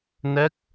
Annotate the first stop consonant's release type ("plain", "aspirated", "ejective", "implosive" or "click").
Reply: plain